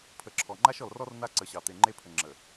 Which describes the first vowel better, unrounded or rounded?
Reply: unrounded